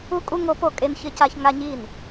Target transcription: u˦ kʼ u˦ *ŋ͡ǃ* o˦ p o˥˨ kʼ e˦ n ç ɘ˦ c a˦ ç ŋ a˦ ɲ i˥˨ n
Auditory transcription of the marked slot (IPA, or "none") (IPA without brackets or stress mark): ŋ